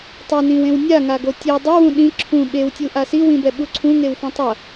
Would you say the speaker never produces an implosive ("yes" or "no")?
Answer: no